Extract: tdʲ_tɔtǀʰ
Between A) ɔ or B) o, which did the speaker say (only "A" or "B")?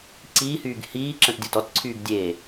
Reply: B